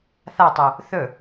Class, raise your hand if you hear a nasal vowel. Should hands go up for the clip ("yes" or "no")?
no